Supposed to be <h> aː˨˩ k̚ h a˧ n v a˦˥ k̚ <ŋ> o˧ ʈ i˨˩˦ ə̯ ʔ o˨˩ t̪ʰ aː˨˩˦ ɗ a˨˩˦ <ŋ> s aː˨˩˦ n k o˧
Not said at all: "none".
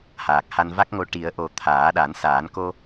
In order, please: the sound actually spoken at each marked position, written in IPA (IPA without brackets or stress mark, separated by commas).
h, ŋ, n